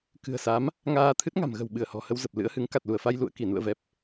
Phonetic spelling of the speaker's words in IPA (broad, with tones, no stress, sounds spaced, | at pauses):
k ɨ̤˨˩ ə̯ s a˨˦ m | ŋ aː˧ t̪ʰ ɨ˦˥ t̚ ŋ a̤˨˩ m ɣ ə̤˨˩ w ɓ ɨ˧˩ ə̯ h ɔ̤˨˩ h ə˧ w z ə˨˩ p̚ l ɨ̰˧˥ ə̯ h ɨ˨˦ ŋ k a˨˩ t̚ l u˧˩ ə̯ f a˧ j l ṵ˧˨ ə̯ k i˧˩ n ṵ˧˨ ə̯ v ɛ˨˩ p̚